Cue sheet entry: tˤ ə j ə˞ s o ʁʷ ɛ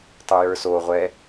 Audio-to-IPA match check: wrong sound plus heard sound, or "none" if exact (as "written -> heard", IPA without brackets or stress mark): none